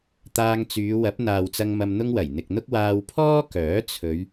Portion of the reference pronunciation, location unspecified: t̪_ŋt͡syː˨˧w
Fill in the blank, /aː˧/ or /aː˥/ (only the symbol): aː˧